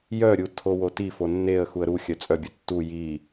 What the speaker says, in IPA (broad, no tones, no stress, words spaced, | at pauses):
jœɾʲu tʰowotifo nːeə̯ xuə̯ɾuxʲœ t͡sʼœbʲu tːu ji